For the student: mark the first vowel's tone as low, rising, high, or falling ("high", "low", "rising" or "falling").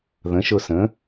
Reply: rising